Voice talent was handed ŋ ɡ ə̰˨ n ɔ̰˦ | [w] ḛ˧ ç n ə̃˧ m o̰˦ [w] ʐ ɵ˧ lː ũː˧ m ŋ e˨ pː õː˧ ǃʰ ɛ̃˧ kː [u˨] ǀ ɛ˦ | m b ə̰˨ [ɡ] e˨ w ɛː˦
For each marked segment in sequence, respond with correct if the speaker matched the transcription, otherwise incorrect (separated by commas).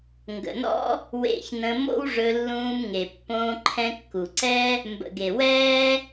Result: correct, correct, correct, correct